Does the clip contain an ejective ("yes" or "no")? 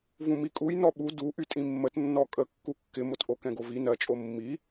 yes